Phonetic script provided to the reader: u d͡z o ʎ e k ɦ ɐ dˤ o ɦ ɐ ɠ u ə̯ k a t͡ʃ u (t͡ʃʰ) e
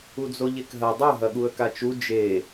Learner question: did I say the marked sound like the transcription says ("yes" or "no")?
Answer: no